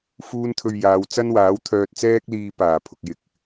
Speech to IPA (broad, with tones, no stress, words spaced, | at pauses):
fuː˥nt̪ʰɵ˧ɥjaː˨˧w t͡sɐ˥nwaː˨˥wt̪ʰœː˧t̚ t͡sɛː˥k̚liː˧ paː˨˩pʰʊ˨k̚jɪ˨˥k̚